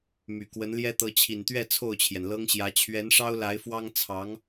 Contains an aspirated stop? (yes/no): yes